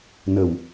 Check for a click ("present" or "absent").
absent